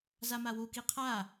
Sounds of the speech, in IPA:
z a m a w u k i qʰ a

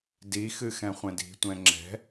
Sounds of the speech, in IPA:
d i x ɨ x ɛ̃ χʷ ɛ̃ d i̤ tʷ ɛ̃ ŋ͡ǁ ɛ̤

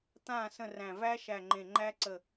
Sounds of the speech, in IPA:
t̪ ãː˥˩ s ə̃˥˩ r æ̃˧˩ v æ˦˥ ʃ æ˧˩ ŋ͡ǃ ẽ˧˩ ŋ͡ǃ æ˦˥ ǀ ə˧˩

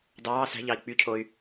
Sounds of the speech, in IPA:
d ɑː s æ̤ ʎ ɑ i̯ k͡p y cʰ o y̯

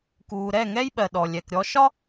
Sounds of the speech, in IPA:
k uː˨ ɾ ɛ˦˨ ŋ ɛ˦ j ɓ ɜ˨ ɗ ɔ˨ lʲ ɛ˨ k ɾʲ ɔ˦ ʃ ɒ˦

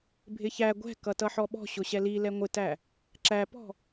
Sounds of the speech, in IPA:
bʱ ɪ ç æ ɡʷ ɛ̤ k ʌ t ʌ ħ ɔ ɓ ɔ̤ ɕ ʊ ɕ ɛ l i l ɛ ŋʷ ɪ t æ | ǁ æ p ɔ̤

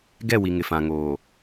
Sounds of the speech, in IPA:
ɡ ɛ˦˨ w i˨ ŋ ɪ˨ f ã˨ ŋ oː˨

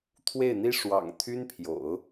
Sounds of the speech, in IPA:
t̪ʰ w e˥˩ ɪ̯ n̪ i˥ ʂ w ɑ̰˨˩ ŋ t̪ʰ y˥ n pʰ j o̰˨˩˦ ʊ̯

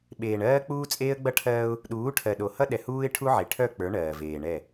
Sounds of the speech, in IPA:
ɓ eː˨ ɳ ɜː˦ k͡p uː˦ t͡sʼ eː˦ ə̯ ɡ͡b ʌ˦ ʈʰ ɜː˦ ʊ̯ | ɗ uː˨˦ ʈʰ ɜ˨ ɗ o˨ h ʌ˦ ɗ ɛ˨ h uː˦ ɪ̯ ʈʰ u˦ ʕ e˨ ʈʰ œ˦˨ k͡p ə˞˨˦ ɳ ɜː˨ v eː˨ ɳ ɛ˦˨

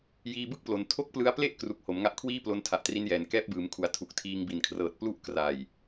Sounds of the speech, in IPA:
j iː˧ b ɯ˥˩ k̚ p l o˩˦ n tʰ o˥˩ k̚ p l ɯ˦˥ a̯ p l e˥˩ ʔ k r u˨˩ k̚ h o˩˦ m ŋ a˦˥ ʔ kʰ w iː˥˩ p l o˧ n tʰ a˨˩ ʔ t r i˦˥ n j ɛː˩˦ n k ɛː˦˥ p̚ b ɯː˩˦ m kʰ u˩˦ a̯ tʰ u˨˩ k̚ tʰ iː˧ ŋ b i˨˩ n kʰ r ɤː˨˩ t̚ p l u˥˩ ʔ k r a˨˩ j

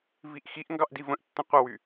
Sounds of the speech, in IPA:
v i ʔ x i ʔ ŋ ɡ ɑ ʔ d i v ə̃ ʔ tː ə̃ qʷ ə w y

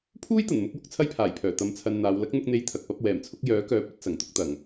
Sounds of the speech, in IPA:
pʰ uː˥ j t̪ ɐ˨˩ n m ʊ˧ k̚ w ʊ˧ k̚ t͡sʰ ɐ˥ j pʰ aː˨˩ j pʰ œː˨˩ t̪ ɐ˧ m t͡sʰ ɐ˧ n n̪ aː˨˧ w l ɐ˨˥ k̚ n̪ ʊ˧ k̚ n̪ e˨˥ j t̪ʰ ɐ˨ k̚ p ɐ˨˥ p̚ w ɛː˨˩ m t͡sʰ ʊ˨˥ k̚ j œː˨˥ k œː˨˥ p̚ ɐ˨˥ t̚ s ɐ˨˩ ŋ t̪ ʊ˧ k̚ t̪ ɐ˨˩ ŋ

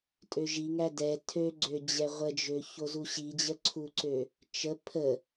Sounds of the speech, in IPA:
tʼ ø ʒ i ŋ æ d ɛ tʰ ø ɡ͡ǀ ø d͡ʑ ɛ ʁʷ ə d͡ʒ ø ç o z u ɕ i d͡ʑ ə ǀʰ u ǀ ø | t͡ʃ ə pʰ ə

